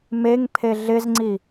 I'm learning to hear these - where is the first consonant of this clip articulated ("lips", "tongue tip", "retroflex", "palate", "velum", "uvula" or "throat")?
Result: lips